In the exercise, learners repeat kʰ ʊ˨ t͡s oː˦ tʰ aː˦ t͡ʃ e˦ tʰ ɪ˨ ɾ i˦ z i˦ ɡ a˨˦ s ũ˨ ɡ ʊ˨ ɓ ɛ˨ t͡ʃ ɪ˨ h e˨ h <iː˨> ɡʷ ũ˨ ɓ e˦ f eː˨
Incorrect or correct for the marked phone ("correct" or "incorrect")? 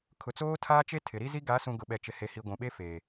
incorrect